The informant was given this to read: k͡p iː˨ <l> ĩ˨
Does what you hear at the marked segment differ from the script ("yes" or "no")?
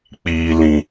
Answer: no